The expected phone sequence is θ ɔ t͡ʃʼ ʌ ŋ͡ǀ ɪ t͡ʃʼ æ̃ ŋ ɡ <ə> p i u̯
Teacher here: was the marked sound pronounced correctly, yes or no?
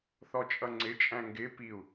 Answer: no